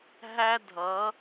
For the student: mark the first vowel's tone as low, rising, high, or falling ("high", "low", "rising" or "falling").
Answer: high